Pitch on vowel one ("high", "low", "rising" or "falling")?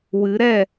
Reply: rising